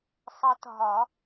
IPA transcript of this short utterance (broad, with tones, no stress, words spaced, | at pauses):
sˤʌ˧˥tɦɒ˨˩˦